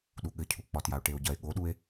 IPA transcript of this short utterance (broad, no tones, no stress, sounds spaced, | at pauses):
ɗ u ɠ ɘ cʰ u k͡p ɒ t j a o̯ ʈ e o̯ ɟ ɐ e̯ ɠ o ɗ u e̯